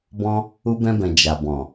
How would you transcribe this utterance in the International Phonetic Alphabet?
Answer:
b ɔ̃˦ | u˦ b ɛ̃˦ b ɛ̃˧ d͡ʒ a˨ b ɔ̃˨

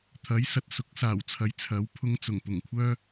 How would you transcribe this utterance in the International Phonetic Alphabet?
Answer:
t̪ʰ ɐ˨˥ j s ɐ˨ t̚ s ʊ˨˥ k̚ s aː˨˩ w t͡sʰ ɐ˨˥ j t͡sʰ ɐ˨˥ w pʰ ʊ˧ ŋ t͡s ʊ˨˩ ŋ p ʊ˨˩ ŋ kʷʰ œː˥

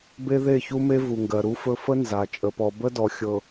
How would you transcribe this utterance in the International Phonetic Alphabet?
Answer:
b e˦ ð e˦˨ ç u˦ m e˦ v u˨ ŋ ɡ ɜ˨ ɾ u˦ f ɵ˦ f ə˦ n z a˨ t͡ʃʼ ə˨ p ɔ˨ b ə˦ d ɔ˨ xʲ ɤ˨

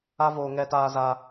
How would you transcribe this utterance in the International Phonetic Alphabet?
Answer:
a˦ v oː˧ ŋ ɛ˧ t aː˧ z a˧

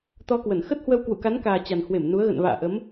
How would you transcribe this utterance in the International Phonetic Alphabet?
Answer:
t̪ ɔ˧ k w ə˧˩ n x ə˦˥ t̚ h w ə˧ w k w ṵ˧˨ k a˨˦ n k aː˨˩ t͡ɕ a˨˩ n h w e˧˩ m n u˨˦ ə̯ ɣ ə̰˧˨ n v a̰ː˧˨ ʔ ə˨˦ m

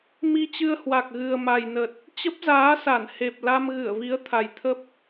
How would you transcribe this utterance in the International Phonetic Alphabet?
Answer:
m i˧ t͡ɕ ɨ˧ ə̯ h w a˨˩ k̚ ɣ ɨ˨˩ ə̯ m a˨˩ j n ə˨˩ t̚ | t͡ɕ ə˦˥ p̚ z aː˨˦ s a˧˩ n h e˨˩ p̚ l a˧ m ɣ ɨ˧˩ ə̯ v i˨˦ ə̯ t̪ʰ a˨˩ j t̪ʰ ə˦˥ p̚

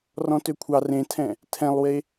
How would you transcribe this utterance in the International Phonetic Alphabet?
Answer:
r ɔ̃ t ø kʷʰ ɑ r ẽ tʰ ɛ̃ | tʰ ɛ̃ lˠ w e

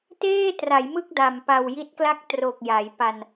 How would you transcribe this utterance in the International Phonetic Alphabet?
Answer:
t eː˥˩ t r a˩˦ j m ɯ˥˩ k̚ d a˨˩ m p a˧ w j i˦˥ t̚ k l a˥˩ k̚ t r o˨˩ k̚ j a˩˦ j p a˧ n

